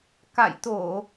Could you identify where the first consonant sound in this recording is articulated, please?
velar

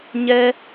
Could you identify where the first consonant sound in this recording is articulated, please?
palatal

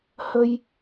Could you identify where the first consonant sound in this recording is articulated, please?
glottal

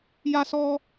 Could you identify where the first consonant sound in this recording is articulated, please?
palatal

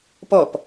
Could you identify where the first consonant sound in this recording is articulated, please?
labial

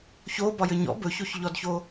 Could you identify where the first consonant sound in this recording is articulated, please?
palatal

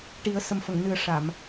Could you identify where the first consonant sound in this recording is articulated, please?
retroflex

